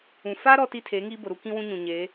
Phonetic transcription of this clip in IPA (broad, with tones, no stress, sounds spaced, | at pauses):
ũ˨ f a˦ ɾ ɔ˦ t i˦ tʰ eː˨˦ ŋ iː˦ b ʊ˨ ɾ u˦ k ĩ˦ w ũ˦ ɲ ũ˨ ɲ e˨˦